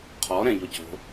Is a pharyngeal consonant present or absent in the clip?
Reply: absent